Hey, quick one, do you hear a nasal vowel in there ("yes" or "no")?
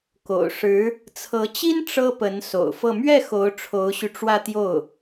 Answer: no